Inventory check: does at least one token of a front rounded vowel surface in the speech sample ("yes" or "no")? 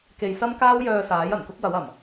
yes